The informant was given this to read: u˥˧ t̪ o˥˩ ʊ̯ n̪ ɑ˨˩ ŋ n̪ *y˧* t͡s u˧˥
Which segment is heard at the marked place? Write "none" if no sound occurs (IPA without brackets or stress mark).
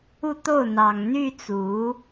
y˥˩